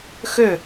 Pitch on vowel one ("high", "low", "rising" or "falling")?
falling